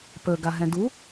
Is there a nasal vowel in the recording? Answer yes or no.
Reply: yes